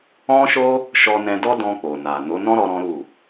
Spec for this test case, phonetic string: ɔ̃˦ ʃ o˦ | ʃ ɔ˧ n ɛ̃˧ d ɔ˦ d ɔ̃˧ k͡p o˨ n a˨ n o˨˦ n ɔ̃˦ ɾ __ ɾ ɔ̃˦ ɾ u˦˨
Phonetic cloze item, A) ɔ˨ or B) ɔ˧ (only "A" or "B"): B